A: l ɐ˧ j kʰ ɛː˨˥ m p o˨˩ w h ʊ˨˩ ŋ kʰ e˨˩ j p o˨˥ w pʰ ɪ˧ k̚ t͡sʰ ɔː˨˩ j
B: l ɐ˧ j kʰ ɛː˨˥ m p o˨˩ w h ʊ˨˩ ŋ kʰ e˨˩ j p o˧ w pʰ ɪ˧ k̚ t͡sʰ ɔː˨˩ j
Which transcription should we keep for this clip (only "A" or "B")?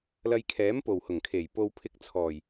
B